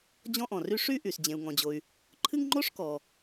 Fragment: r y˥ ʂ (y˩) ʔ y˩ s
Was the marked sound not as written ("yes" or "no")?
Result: yes